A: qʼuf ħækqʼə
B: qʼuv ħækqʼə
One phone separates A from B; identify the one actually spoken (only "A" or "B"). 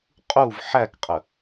B